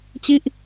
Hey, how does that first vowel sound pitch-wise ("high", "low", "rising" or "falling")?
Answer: falling